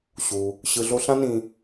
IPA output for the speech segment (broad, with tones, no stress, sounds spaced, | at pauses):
ɕ u˩ | ɕ ɯ˨ ɮ o˦ ɬ ã˦ n ĩ˨